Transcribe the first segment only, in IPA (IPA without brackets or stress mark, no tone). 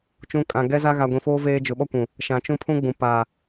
t͡ʃ